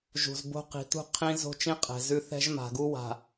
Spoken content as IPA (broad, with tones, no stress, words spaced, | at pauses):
ʒṳ˨zbo̤˦ qi̤˨tṳ˦ qʰĩ˦ zo̤˦t͡ʃĩ˦ qʼɛ̤˨zʉ˦ θɛ̤˦ʒma̤˨ɡu˦ wa̤˨